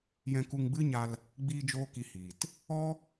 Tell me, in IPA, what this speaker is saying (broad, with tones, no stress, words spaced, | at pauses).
jɛ̃˧ku˧ŋɡ͡bɨ˦ɲa˧l | ɡ͡biː˦d͡ʒoː˦ki˧hiː˨t | ɔ˦